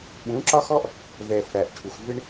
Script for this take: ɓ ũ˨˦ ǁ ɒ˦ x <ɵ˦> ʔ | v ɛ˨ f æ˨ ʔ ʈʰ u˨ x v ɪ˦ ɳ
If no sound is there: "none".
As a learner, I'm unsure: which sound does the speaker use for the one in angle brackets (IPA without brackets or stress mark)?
ɔ˦